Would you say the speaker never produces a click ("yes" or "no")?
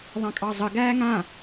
yes